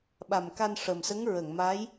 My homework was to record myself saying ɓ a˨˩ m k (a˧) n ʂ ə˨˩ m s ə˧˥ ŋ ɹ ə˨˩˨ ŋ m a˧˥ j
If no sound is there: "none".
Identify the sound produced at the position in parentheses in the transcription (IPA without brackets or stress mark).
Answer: a˧